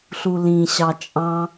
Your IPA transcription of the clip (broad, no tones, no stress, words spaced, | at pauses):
ɬulĩ ɕɑt͡ʃʼɑ̃